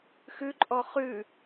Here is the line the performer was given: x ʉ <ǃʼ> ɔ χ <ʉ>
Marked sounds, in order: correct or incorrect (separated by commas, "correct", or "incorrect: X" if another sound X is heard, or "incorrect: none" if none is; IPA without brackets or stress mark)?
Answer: correct, correct